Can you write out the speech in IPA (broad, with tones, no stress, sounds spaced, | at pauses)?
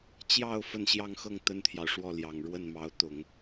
t͡ɕ j ɑ˥˧ ʊ̯ f ə˥˧ n ɕ j ɑ˥˧ ŋ x ɤ˥˩ ŋ t̪ ə˥ n t̪ʰ j ɑ˨ ʊ̯ ʂ w ɔ˥˩ l j ɑ˨˩ ŋ ɻ w ə˥˩ n m ɑ˧˥ ʊ̯ t̪ ʊ˨˩˦ ŋ